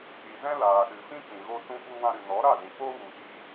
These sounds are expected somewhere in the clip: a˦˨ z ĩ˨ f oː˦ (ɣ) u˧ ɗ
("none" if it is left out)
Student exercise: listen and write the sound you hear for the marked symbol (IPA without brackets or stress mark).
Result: ɣ